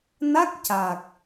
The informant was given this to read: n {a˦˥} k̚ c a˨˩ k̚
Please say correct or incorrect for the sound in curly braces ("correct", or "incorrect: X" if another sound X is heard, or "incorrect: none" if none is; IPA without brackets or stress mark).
correct